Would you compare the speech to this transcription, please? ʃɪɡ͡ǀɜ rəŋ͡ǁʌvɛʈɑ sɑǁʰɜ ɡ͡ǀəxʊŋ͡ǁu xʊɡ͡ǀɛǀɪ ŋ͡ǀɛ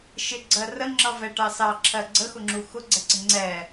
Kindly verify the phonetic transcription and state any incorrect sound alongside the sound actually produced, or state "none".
none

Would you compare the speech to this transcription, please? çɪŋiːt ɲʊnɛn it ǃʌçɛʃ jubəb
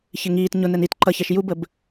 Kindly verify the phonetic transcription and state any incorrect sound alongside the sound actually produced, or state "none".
none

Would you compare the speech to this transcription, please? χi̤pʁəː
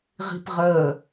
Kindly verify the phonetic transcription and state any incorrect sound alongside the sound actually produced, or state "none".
χ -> ʁ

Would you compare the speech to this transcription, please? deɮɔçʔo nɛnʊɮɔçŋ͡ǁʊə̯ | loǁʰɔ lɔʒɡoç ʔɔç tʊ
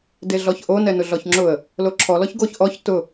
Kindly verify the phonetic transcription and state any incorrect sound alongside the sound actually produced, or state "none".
ʒ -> ç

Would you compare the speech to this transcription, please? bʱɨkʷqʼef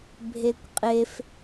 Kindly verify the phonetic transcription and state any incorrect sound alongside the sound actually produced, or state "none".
ɨ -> e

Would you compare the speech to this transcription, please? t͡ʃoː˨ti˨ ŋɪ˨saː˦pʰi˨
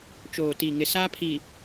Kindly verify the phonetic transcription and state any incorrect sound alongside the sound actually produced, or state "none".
none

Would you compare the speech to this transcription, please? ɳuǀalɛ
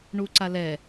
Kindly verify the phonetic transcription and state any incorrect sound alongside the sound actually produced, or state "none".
none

